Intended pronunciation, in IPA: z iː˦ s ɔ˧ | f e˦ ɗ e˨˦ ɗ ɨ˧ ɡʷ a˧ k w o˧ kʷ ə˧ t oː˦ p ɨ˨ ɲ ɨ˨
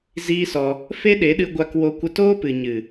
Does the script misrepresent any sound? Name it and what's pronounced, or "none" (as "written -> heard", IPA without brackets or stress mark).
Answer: none